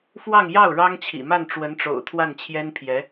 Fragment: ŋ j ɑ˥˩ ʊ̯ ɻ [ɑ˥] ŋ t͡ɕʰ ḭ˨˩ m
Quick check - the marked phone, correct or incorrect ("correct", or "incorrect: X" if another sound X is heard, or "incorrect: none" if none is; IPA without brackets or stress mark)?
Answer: correct